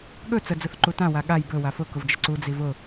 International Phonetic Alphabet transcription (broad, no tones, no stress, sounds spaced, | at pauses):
ɠ ɵ t͡s ə d͡z ʊ θ ǃ u t ã w a ɠ a j b ɵ w a f ʊ k ʊ v d͡ʒ ə ǀ u d͡z i v ʊ